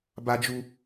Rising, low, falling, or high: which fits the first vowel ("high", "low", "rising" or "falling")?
high